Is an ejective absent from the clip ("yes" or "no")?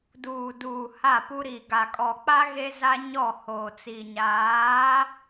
no